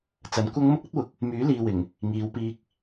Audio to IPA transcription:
t͡s ɐ˨˥ n kʷ ɐ˥ ŋ m ʊ˥ k̚ ɐ˥ t̚ w ʊ˨˥ k̚ | m yː˨˥ l iː˨ w ɪ˨˩ ŋ | ŋ iː˨˧ w p iː˧ k̚

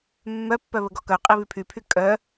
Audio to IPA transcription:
mː œ pː œ β ə ɡ ɔ k œ qʼ i β y pʰ y pʰ y kʼ œ

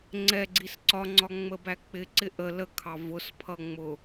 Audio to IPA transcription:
ŋ͡ǀ ɛ ɡ͡ǀ i s ǀ ɒ ŋ͡ǀ ɒ ŋ͡m ə b æ k͡p ɪ ǀ ɪ ʔ ə l ə kʰ ɑ v ʊ s pʰ ʌ ŋ͡m ʊ

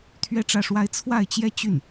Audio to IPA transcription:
t̪ʰ ɥ ɛ˥˧ ʈ͡ʂ ä˥˩ ʂ w a˥ ɪ̯ t͡sʰ w a˥˩ ɪ̯ t͡ɕ j ɛ˥ t͡ɕ y˥˩ n

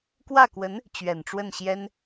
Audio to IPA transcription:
k w ä˥˩ k w ə˧˥ n | t͡ɕ ɥ ɛ˨˩ n ʈ͡ʂ w ə˥˩ n ɕ j ɛ˥ n

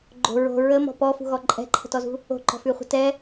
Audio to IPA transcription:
ɡ͡ǃ o̤ ɹ o̤ ɹ ə m ɔ̤ p ɔ f ṳ ɣ ɔ ǃʼ ɛ̤ ǃʰ ə̤ t ɔ z ṳ | o̤ ǃ ɔ̤ f y χʷ ə̤ t ɛ

